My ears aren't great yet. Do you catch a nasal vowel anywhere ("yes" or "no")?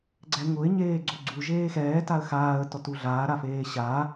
no